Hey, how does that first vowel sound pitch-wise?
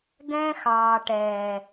high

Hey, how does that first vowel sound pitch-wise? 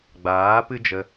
rising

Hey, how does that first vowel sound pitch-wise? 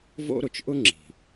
high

